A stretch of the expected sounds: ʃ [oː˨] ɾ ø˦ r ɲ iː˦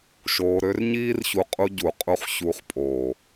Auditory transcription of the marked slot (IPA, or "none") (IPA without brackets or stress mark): oː˧